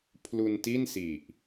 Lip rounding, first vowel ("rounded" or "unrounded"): rounded